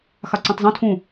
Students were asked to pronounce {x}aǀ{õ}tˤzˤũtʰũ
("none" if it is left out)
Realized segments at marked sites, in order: x, õ

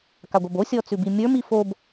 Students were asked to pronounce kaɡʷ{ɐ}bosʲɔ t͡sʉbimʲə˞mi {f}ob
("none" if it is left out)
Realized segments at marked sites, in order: ɐ, f

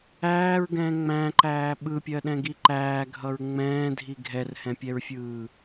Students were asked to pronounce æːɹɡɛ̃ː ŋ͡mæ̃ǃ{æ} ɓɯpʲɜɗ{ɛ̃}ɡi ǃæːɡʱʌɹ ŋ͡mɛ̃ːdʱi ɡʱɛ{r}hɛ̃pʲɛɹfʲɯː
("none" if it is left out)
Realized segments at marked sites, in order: æː, ɛ̃, r

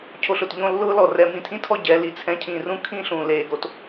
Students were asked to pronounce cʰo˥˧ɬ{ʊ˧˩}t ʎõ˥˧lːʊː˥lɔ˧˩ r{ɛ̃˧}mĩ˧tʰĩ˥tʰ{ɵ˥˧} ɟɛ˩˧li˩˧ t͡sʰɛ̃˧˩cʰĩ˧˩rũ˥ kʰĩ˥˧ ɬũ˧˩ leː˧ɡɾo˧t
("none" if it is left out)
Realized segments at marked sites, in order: ʊ˧˩, ɛ˧, ɔ˥˧

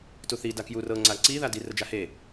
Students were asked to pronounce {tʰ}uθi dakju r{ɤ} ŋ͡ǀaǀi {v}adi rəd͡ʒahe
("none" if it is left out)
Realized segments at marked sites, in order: t, ɤ, ð

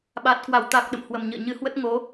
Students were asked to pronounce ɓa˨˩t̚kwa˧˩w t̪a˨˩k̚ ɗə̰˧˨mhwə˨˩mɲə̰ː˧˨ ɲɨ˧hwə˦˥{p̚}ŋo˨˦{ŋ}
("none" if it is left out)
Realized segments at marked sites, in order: t̚, none

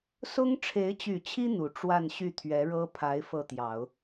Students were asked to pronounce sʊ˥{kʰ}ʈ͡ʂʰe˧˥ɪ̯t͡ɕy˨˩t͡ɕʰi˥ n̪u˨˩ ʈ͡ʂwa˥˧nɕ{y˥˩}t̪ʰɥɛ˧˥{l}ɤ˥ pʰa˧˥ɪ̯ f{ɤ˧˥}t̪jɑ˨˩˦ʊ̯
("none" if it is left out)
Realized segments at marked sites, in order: ŋ, y˥˩, ɻ, ɤ˥˩

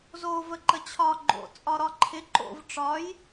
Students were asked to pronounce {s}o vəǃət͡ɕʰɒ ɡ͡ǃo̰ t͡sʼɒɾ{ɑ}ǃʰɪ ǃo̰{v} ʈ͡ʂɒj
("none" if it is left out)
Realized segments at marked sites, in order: z, ɒ, v

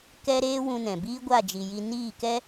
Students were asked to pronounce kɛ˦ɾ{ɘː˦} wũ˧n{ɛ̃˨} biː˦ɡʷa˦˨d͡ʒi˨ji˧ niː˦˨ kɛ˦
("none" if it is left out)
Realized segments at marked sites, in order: eː˦, ɛ̃˨

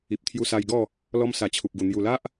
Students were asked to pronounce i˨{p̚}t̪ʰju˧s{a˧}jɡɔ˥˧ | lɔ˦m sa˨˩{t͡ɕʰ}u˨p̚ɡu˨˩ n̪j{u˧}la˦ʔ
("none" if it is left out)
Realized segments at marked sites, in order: p̚, a˧, t͡ɕʰ, u˨˩

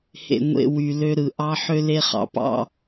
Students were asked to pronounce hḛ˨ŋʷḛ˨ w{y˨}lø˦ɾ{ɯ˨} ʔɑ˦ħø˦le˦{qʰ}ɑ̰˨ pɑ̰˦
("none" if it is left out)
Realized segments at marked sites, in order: y˨, ɯ˨, χ

